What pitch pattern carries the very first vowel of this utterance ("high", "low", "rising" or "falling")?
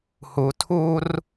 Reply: low